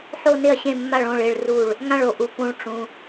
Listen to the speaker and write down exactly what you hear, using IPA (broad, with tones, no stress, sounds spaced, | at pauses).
ħ o˦˨ n ɪ˦˨ ɐ̯ ɕ ẽ˦˨ mː a˦˨ ɭ õ˦˨ ɭ e˦˨ ɭ r u˦˨ ɭ | ŋ ã˦˨ ɭ o˨ ʔ u˨ p ũ˨ ɭ ʈ͡ʂ ũ˨